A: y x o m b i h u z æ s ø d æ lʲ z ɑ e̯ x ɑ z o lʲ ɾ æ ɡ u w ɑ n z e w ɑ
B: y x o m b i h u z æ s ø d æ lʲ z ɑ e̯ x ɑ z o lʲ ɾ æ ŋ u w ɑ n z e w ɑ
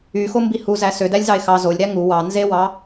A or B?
B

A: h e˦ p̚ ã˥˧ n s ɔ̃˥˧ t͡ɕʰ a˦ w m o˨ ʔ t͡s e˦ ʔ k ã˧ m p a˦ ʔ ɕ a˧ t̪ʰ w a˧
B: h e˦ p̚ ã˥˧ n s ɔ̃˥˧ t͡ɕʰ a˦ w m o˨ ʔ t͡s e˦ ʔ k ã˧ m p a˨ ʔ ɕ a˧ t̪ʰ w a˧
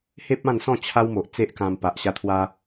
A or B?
B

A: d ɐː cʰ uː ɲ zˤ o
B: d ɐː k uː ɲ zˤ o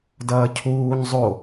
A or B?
A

